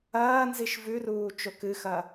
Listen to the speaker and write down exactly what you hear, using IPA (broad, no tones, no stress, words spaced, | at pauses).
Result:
ɐːnziʃ vʉruː t͡ʃokɨxɐ